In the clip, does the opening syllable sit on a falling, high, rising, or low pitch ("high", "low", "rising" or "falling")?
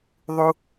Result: high